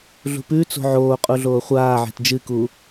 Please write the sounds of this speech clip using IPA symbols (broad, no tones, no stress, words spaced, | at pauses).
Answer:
ɮṳpʉ t͡so̤ʕoːqʼuɮoː χʷaːʕe̤t d͡ʒɨku